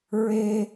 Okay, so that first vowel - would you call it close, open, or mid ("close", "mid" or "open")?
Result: mid